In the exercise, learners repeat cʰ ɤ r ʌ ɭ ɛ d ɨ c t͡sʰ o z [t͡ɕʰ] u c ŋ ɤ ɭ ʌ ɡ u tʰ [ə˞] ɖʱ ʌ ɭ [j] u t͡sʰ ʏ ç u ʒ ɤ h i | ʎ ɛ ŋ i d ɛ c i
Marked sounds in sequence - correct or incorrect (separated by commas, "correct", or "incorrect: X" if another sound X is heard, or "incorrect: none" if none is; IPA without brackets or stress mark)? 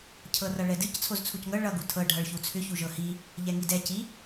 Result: incorrect: t͡sʰ, incorrect: ɤ, incorrect: ç